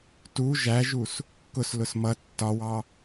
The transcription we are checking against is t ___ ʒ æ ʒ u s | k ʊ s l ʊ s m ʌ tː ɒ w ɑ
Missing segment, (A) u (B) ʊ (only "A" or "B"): A